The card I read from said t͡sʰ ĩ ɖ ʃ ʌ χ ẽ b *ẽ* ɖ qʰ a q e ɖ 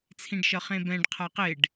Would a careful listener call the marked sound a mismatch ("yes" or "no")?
yes